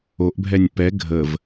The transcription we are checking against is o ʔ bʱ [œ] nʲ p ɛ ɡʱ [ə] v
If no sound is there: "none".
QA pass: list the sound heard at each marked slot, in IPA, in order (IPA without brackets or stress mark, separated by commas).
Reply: ɛ, ə